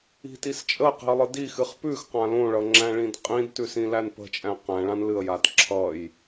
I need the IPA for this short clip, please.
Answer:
i̤ t i s t͡ʃʼ ə q i̤ ə̯ lˠ ɨ d i x ɨ χ p ʉ x q ã l õ ɭ ʌ ŋ͡ǁ æ̃ ɭ ĩ d qʼ ĩ d t ʉ s ĩ l æ n p ə̤ t͡ʃʼ æ̃ q æ̃ ɭ ã n l ɨ ə̯ j a d ǁʰ ʌ j

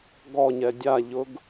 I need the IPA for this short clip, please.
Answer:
ɡ ɔ ɲ ɛ dʲ a ʎ ʊ ɡ

